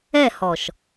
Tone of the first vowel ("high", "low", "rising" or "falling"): falling